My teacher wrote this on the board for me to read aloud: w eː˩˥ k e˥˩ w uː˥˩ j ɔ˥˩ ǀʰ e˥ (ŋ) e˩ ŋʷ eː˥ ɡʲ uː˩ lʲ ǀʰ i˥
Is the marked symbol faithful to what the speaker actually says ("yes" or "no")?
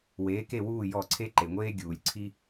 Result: no